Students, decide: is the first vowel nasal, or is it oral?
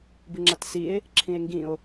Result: oral